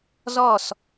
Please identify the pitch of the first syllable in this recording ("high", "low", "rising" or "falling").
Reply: falling